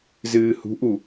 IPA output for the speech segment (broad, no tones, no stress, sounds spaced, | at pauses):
z ɨː h ṳ ʔ u